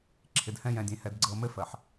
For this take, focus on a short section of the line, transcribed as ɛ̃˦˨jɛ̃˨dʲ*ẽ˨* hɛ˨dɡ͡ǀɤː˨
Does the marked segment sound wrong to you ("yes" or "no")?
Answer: no